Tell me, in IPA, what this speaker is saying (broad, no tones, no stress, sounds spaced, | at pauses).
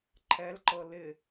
ǃʰ ɛ l ǃ ɤ l ɪ